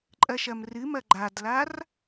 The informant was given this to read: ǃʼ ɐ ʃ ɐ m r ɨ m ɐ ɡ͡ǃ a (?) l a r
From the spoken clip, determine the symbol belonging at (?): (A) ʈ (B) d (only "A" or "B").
B